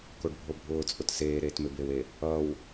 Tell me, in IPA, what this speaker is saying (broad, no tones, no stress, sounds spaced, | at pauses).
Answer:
k o ɖ bʱ o bʱ ʊː t͡sʼ ʊ t s eː ɾ eː t m e b e w e | ʌ w